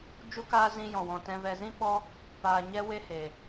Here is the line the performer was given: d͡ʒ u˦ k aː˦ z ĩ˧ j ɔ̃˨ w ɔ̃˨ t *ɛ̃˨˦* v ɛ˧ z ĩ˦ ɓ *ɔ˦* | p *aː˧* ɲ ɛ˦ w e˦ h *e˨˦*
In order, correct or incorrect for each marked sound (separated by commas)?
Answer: incorrect, correct, incorrect, incorrect